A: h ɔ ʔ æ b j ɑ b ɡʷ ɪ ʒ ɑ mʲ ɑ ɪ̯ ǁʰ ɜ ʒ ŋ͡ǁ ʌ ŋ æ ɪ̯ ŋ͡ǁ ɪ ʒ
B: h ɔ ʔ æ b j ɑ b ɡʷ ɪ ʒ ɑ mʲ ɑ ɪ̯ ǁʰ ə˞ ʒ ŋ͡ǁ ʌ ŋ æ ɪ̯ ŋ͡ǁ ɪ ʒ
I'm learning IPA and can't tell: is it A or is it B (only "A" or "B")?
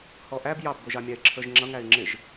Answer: B